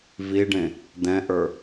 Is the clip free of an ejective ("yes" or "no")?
yes